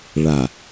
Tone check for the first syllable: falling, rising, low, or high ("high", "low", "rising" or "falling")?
low